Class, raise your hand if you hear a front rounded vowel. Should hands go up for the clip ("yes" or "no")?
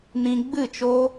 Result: no